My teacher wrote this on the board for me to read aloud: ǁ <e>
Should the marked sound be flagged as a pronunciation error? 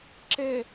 no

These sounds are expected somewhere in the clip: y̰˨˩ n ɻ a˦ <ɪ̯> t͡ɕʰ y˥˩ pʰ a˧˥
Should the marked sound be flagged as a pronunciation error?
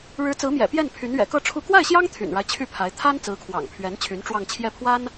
no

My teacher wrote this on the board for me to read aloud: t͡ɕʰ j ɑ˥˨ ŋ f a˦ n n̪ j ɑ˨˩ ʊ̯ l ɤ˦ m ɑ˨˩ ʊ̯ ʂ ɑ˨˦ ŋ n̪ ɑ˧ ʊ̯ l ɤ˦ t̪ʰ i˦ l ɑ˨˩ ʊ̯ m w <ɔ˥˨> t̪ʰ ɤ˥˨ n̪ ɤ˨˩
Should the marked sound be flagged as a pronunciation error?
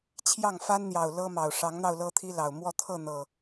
no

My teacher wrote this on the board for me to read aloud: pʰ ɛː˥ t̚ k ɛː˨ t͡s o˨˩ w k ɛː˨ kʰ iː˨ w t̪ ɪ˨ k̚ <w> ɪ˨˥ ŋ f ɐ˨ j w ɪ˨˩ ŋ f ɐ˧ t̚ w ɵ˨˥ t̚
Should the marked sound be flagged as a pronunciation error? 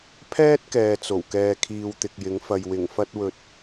yes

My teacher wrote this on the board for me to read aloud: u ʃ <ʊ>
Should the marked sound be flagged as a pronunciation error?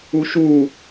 yes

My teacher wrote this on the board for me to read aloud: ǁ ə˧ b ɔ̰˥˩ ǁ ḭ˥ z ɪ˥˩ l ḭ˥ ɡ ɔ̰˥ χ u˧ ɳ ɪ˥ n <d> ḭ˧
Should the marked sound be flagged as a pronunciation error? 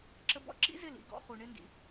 no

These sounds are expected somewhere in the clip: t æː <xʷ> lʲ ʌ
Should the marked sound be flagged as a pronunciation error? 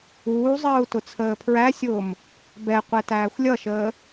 no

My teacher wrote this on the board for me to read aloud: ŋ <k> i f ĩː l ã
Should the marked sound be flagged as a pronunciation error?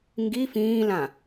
yes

